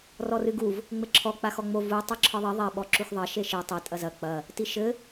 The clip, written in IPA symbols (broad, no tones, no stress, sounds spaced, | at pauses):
r ɔ r ɨ ɡ u v | ŋ͡m ɘ ǁʰ ɔ k͡p a x ɔ ŋ͡m o v u tˤ o ǁʰ ɨ ðˤ i ðˤ ɛ ɓ ɔ ǁ u x ðˤ ɐ ʃ e ʃ i tˤ e tʼ ɐ z ɐ k͡p ɐ | t i ʃ ɘ